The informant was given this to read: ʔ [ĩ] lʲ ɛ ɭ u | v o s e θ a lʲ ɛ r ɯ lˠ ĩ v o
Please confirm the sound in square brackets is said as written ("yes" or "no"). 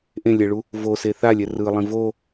no